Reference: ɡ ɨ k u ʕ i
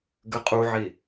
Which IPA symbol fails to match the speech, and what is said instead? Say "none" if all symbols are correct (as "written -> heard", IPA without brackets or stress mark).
k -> qʼ